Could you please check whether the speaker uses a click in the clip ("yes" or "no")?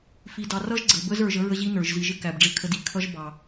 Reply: yes